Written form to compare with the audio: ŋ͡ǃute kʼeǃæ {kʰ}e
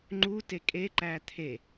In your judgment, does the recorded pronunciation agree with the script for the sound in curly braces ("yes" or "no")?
no